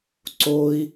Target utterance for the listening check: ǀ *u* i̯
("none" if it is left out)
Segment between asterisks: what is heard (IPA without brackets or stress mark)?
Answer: o